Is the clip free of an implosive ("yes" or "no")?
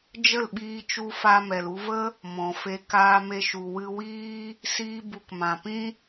no